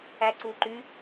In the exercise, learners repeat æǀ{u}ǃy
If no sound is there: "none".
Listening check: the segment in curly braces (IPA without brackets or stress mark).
u